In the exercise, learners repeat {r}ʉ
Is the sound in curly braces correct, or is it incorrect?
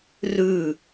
correct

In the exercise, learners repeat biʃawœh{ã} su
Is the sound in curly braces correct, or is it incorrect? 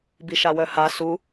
incorrect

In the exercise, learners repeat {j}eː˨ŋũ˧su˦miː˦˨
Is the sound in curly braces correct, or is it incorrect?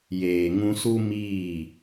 correct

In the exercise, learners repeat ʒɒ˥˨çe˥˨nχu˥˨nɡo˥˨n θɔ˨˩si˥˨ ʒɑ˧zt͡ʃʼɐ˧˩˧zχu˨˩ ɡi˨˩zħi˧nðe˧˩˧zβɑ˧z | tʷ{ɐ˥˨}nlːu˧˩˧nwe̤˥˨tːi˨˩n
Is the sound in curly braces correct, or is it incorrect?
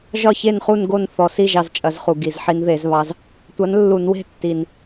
incorrect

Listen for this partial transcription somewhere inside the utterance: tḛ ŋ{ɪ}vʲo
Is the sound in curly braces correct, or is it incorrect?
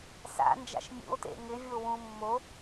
correct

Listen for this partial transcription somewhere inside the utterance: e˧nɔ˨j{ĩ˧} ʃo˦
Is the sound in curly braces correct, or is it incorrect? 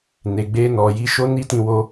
incorrect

